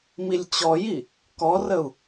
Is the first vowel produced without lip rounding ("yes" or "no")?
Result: yes